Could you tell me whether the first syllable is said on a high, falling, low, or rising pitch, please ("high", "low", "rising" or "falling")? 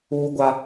high